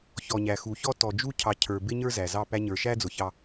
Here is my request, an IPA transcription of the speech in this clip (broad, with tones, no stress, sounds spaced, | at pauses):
ç ɔ˨ ɲ æ˨ x u˨ ç ɔ˦ t ɔ˨ d͡ʒ u˦ cʰ ɑ˨ cʰ ə˞˨ b ɪ˦ ɲ ə˞˦ z æ˨ z ɑ˦˨ p æ˦ ɲ ə˞˨ ʃ æ˦ d͡z ʊ˨ ç ɑ˦